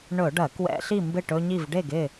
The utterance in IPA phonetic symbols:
ɳɵ˧˩˧ɖɐ˧˩˧kwɛ̰˧˩˧ ɬi˥˨mbɪ˥˨ʈɵ˦ɲi˥˨v ɖe˥˨ɡɪ˥˨

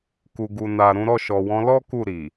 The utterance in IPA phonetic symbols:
ku˨ɡu˨na˨ ɾũ˨˦ɾɔ˦˨ʃɔ˨wɔ̃˧ lɔ˦ ku˦˨ɾi˨

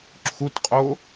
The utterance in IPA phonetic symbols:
ǁʰutqʼo

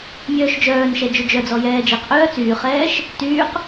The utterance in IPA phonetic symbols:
mʲœːʃd͡ʒœːnʃɛ d͡ʒød͡ʒœd͡zɔ jɛːd͡ʒeqʔœː t͡syːχɛːʃ | tyːq

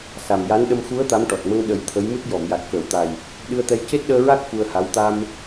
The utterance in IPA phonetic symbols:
sa˨˩mja˧˥nɗə˧m xu˧˥ə̯ t̪a˧˥mʈɔ˨˩t̚mə˧ŋ ɗə˨˩˦j t̪ʰə˧˥jmɨ˦˥t̚ jɔ˨˩˨mja˨˩t̚ kəː˨˩˨wt̪a˨˩j | ɗɨ˧ə̯t̪ɛ˧j ce˦˥t̚ɗəː˧ɹa˦˥k̚ fu˧ə̯ha˧˥w t̪a˧m

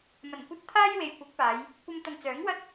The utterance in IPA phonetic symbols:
mɐ˨˩nkʷɐ˧t̚ t̪ʰaː˥jwe˨j kʷɪ˨˥k̚paː˨˧j | kʷɐ˧mt̪ɐ˨ŋt͡sœː˨˥ŋwɐ˥t̚

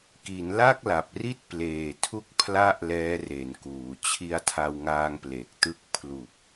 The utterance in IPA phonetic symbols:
ki˩˦nla˥˩k̚la˨˩p̚ri˥˩t̚ pleː˨˩tʰu˥˩k̚ pʰla˦˥ʔ lɛː˦˥re˩˦nkuː˩˦ t͡ɕʰi˧a̯tʰa˧wŋaː˧ŋ ple˨˩k̚tɯ˦˥k̚ pʰlu˨˩k̚

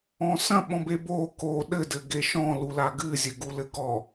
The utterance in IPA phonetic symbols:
ɔ̃sɐ̃ ɓɔ̃bebo ko ɗɘ dɘɡeʃɔ̃ lulaɡɨ zʲɘɡulɘɡɔ

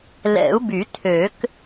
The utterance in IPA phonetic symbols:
lɛ̰˨˩˦u̯by˨˩˦tʰø˨˩˦k

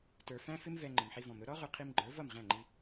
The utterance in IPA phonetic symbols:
tə˞˧ fæ̃˦fɪ˦mvɛ˧ ŋ͡ǃɪ˨mħi˧vɔ̃˨mɾʊ˦ ɾɔ˦ʁʊ˧qʰi˧mɡ͡ǃə˞˨˦ vʌ˦˨mʁæ̃˦˨ŋ͡ǃi˧

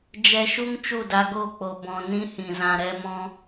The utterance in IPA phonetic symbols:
d͡ʒɛ˧ʃu˦ŋ t͡ʃu˦˨da˧ɡo˦˨ k͡po˨bɔ̃˨ nĩ˦hĩ˨zã˧ ɾɛ˦ mɔ̃˦

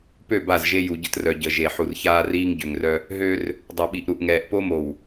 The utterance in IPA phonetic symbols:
pø˦˨ ba˦˨zʒe˦ ju˨ɟə˦trœ˨ ɟə˨ʒe˨ ħu˨rçaː˦riː˦ŋ ɟø˨ŋrœ˦ | ɦø˦r | dˤœ˨ɓi˨ʔ ɾu˨ʔŋɛː˨ʔpo˦mo˨w

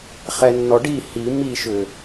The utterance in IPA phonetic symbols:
χɛnːɔɖi hi miʃʏ

